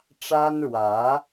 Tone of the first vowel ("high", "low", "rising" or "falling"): high